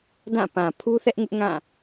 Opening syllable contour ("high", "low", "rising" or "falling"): falling